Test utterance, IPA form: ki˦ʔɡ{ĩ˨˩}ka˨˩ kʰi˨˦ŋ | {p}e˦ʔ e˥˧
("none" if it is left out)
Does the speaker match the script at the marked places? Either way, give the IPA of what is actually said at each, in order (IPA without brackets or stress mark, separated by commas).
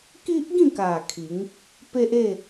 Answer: ĩ˥˧, p